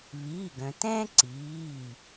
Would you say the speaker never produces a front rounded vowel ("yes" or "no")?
no